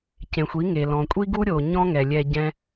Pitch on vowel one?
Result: low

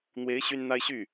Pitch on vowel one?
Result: rising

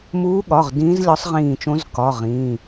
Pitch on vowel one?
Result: rising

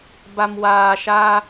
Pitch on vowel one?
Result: low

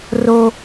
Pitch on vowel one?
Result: high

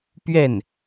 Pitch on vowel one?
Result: falling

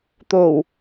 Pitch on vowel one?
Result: low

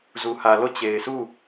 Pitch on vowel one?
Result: low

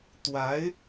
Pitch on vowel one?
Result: rising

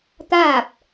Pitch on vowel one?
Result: falling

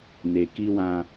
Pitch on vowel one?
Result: low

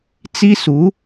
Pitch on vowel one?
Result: high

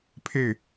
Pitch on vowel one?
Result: falling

